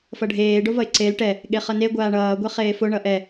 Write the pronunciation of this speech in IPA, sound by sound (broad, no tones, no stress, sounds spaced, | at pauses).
f ʌ ɖʱ eː ɖ o v ʌ ɪ̯ ǀ e l ʈ ɛ | ɠ e χ ʌ n e ɡʷ aː ɳ ʌː ɡʷ ɛ χ eː f o ɳ ʌ ʔ ɛ